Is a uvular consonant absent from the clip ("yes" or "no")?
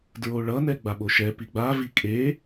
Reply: yes